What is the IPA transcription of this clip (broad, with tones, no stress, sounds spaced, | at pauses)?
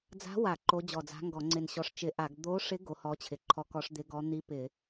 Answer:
d͡z a̤˧˥ w a˧˩˧ ǃ o˧˥ d͡ʑ ɔ˧˩ d͡z a̤˧˥ ŋ ɡ ɔ˧˩˧ ŋ͡ǀ ɪ˧˩ n ɕ ɔ˧˩ ʂ t͡ʃ ɪ˧˩˧ ʔ a˧˩˧ ɡ d̪ o˧˥ ʂ ɪ˧˥ ɡ o˧˥ h ɔ˧˥ t͡ɕʰ ɪ˧˩˧ ǃʰ ɔ˧˥ k ɔ˧˥ ʂ d̪ ɪ˧˥ ɡ ɔ˧˥ n̪ i˧˥ p ɪ˧˩˧